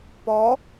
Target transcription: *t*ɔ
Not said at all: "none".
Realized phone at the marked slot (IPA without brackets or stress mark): p